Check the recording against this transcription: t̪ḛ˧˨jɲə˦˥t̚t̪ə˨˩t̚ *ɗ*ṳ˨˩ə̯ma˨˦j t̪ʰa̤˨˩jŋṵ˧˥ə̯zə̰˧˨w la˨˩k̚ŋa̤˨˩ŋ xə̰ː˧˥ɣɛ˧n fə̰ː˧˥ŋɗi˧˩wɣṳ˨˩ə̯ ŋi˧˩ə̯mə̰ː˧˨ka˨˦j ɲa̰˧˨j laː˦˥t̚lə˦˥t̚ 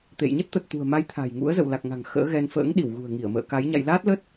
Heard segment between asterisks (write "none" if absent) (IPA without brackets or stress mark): t̪